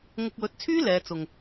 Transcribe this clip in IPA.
ŋ ʊ˧ k̚ w ɵ˨˥ t̚ t͡sʰ yː˥ l ɛː˨˧ t͡s ʊ˨ ŋ

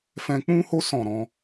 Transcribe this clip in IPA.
f ɛ̃˧ k͡p ũ˦ h o˦ s ɔ̃˦˨ ɾ ɔ̃˨˦

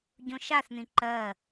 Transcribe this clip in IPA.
ɟ õ ʃ a θ n̪ ĩ ǃ ɜ

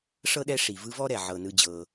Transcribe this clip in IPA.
ʂ ɤ˥ ɗ ɛ˦ ʂ i˩ v ɯ˦ v ɔ˥ ɾ ɛ˩ ʕ ɤ˩ n ɯ˨ d͡ʑ ɤ˩

